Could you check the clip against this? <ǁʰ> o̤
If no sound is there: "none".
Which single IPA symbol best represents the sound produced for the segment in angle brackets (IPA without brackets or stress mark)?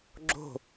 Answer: ɡ͡ǁ